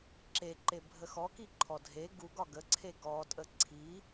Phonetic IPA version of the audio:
ǁ e ǃ e bʱ ə x ɔ k i ǃʰ ɔ dʱ e ɡ u ɡ ɒ ɡ ə ǀʰ e ɡ ɔ tʼ ə ǀʰ i

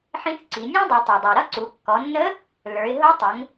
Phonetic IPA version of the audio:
ħ ĩ˧˥ θ ǀ i˩˧ nʲ æ̃˥ dˤ ɛ˩˧ tˤ ə˞˩ dˤ ə˞˩ ɾ ʌ˥ ǀ u˩˧ kː ɔ˩˧ nː ə˧˥ | l ə˞˩˧ ɪ̯ ɦ ʊ˧˥ tˤ ʊ˩˧ ŋ

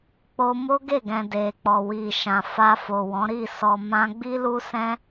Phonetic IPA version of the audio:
k͡p o˧ m o˦ ɡ e˦˨ ɡ ɛ̃˨ d e˨ k͡p ɔ˨ w i˨ ʃ ã˨ f a˧ f o˨ w ɔ̃˨˦ ɾ i˦˨ s ɔ˨ m ã˧ ɡ͡b i˦ l u˦ s ɛ̃˦

